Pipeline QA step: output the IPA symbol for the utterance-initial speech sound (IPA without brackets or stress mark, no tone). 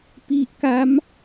p